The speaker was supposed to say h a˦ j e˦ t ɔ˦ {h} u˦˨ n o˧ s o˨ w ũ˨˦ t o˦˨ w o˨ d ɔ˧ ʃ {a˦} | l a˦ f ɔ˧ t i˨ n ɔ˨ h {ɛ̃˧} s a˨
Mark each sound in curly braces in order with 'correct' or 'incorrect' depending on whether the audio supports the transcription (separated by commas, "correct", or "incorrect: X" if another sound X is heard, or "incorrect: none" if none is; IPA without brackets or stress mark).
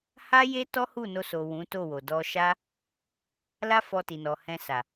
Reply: correct, correct, correct